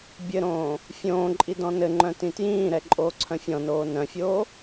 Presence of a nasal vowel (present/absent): present